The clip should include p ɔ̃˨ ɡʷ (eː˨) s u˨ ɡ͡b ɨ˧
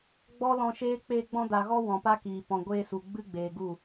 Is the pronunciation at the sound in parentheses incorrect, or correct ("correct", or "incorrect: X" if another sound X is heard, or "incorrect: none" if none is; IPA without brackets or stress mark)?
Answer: incorrect: eː˧